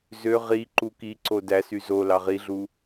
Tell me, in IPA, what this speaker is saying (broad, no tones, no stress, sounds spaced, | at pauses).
z ø ʁ i ǃ u k i ǀ o d æ s y z o l ɑ ʁ i ɮ u